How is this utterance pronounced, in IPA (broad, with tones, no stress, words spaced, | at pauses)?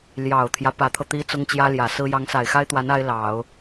ljɑ˨˩ʊ̯t̪ʰjä˦ pä˧˥t̪ʰɤ˧ t̪i˥t͡sʊ˥ŋt͡ɕjä˥ljä˨˩ sɹ̩˥ jɑ˧˥ŋsa˨˩ɪ̯xa˥ɪ̯t̪wa˧˥n a˥ɪ̯lɑ˨˩˦ʊ̯